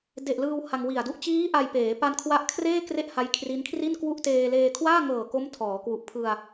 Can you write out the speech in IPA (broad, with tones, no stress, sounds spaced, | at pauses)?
d e˨˩ ʔ l ɯː˧ w h a˧ ŋ w i˨˩ a̯ d u˥˩ ʔ t͡ɕ iː˦˥ ʔ a˧ j p eː˩˦ p a˧ n kʰ w a˦˥ ʔ kʰ r eː˥˩ k r e˥˩ ʔ h a˦˥ j kʰ r i˦˥ n kʰ r i˥˩ n k w u˥˩ ʔ t eː˧ l eː˧ kʰ w aː˥˩ ŋ ɤː˨˩ k o˦˥ m tʰ ɔː˩˦ k w u˨˩ ʔ pʰ ɯ˧ a̯